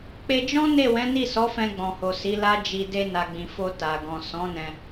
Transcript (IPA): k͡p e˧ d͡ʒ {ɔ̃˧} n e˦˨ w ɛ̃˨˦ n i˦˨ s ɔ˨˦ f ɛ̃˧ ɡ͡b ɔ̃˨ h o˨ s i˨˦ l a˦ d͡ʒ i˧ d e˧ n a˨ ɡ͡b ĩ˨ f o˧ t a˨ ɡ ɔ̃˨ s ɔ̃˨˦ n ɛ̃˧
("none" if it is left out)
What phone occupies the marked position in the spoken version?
ɔ̃˦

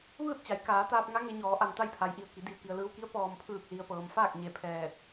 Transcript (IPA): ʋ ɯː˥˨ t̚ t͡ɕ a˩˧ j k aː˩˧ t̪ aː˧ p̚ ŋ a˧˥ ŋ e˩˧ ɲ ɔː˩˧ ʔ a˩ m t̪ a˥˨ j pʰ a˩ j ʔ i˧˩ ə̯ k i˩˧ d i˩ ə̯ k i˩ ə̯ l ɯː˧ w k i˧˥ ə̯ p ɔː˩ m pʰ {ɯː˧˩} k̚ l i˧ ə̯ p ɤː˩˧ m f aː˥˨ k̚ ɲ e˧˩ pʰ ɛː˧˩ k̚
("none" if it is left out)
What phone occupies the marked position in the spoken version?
ɯː˧˩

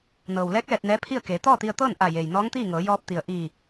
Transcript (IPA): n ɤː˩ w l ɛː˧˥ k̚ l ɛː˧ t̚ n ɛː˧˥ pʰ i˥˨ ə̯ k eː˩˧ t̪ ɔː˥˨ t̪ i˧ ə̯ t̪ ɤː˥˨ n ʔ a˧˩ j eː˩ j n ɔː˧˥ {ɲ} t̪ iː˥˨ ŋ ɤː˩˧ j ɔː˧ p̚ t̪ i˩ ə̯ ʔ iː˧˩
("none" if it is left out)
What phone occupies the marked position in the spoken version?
ŋ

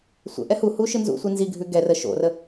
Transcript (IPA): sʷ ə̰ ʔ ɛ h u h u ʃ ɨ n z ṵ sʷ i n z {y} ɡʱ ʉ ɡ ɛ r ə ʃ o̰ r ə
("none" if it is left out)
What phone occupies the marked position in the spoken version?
i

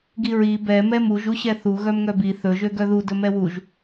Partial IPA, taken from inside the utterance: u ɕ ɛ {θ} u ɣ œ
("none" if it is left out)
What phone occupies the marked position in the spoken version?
θ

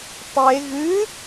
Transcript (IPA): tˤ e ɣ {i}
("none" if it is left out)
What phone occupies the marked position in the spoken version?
ɨ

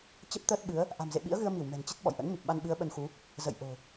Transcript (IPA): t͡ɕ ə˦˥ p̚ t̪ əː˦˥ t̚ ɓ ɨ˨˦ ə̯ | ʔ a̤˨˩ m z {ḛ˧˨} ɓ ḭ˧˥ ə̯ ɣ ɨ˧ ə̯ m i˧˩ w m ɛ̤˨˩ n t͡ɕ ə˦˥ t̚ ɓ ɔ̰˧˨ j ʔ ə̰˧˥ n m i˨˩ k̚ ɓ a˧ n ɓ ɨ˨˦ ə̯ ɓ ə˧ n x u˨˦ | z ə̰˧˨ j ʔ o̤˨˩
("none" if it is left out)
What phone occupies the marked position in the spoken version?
ḛ˧˨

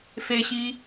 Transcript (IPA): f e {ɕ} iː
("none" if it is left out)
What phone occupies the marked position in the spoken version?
ɕ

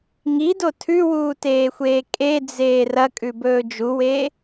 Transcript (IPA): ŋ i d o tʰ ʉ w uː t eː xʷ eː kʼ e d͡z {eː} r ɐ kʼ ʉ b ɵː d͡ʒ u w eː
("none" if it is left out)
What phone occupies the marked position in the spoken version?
eː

